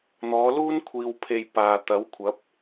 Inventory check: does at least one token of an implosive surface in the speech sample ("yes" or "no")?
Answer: no